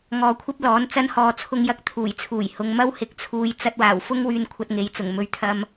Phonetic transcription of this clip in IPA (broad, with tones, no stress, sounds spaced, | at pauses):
ŋ ɔː˧ kʷʰ ɐ˥ p̚ l ɔː˨˥ n t͡s ɐ˥ n h ɔː˧ t͡sʰ ʊ˧ ŋ j ɐ˧ k̚ t̪ʰ uː˨˩ j t͡sʰ uː˨˩ j h ʊ˨˧ ŋ m ɐ˥ w h ɪ˨˥ k̚ t͡sʰ uː˧ j t͡s ɐ˧ t̚ w aː˨˩ w f ʊ˥ ŋ w yː˧ n kʷʰ ɐ˧ t̚ ŋ e˨ j t͡s ʊ˨˩ ŋ m ɵ˨˧ ɥ t̪ʰ ɐ˨ m